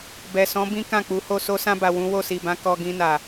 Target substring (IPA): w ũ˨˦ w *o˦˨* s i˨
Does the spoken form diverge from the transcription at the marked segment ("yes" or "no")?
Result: no